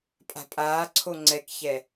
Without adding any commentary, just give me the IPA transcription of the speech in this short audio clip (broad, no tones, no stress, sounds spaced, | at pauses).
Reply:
pʼ a̤ pʼ aː ǀʰ o ŋ͡ǀ ɛ k ç ɛ